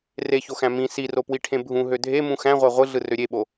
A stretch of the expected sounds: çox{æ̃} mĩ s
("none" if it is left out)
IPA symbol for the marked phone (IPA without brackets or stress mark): æ̃